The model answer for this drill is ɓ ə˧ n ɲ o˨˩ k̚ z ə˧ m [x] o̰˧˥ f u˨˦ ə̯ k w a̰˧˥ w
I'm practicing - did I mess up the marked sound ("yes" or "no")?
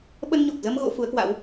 yes